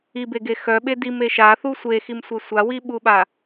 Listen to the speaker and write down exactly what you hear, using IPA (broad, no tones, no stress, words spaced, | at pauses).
ibeɡe xœɓe dime ʃaθu sʷeximsʷe sʷawiɓuɓa